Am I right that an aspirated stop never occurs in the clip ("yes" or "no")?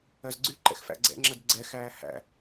yes